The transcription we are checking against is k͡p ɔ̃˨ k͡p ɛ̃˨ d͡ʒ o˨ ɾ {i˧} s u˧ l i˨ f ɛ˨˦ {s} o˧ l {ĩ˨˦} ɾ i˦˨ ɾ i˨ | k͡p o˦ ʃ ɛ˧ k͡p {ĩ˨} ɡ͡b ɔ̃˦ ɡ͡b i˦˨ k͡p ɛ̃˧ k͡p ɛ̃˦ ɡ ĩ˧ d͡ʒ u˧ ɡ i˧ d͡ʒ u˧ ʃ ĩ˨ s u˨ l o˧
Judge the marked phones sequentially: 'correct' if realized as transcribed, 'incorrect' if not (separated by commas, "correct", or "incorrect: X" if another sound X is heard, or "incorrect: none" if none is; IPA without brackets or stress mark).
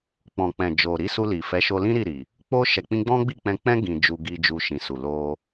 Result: incorrect: i˨˦, incorrect: ʃ, incorrect: ĩ˦, incorrect: ĩ˦